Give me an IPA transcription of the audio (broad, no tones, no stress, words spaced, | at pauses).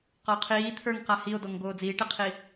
qɒo̯qʰiː t̪ʰə˞ŋqa hio̯dɔŋ ɡoːd͡ziːʈiqʰi